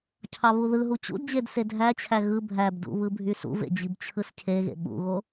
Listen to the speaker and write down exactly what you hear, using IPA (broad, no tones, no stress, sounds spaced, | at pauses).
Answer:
cʰ ɑ β u ð ɯ ɦ u t͡ɕ ṵ d d͡ʑ e d s e dʱ æ t͡ɕʰ æ ɣ ɯ bʱ æ b d ṵ β ɯ bʱ y s ṵ v ḛ d͡ʑ i b t͡ɕʰ ɯ s cʰ e ɣ ḛ ɓ ṵ ɣ o